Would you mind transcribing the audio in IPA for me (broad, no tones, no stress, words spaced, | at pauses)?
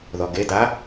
ðɔɡeda